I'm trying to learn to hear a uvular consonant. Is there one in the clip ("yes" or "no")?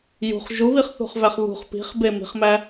yes